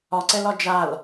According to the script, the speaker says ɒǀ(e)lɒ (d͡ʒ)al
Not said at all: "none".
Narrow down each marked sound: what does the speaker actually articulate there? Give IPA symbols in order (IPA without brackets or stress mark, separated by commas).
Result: ɛ, d͡ʒ